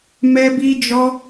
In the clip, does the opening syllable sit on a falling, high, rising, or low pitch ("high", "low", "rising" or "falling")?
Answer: high